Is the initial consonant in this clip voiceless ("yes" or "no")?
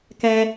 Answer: yes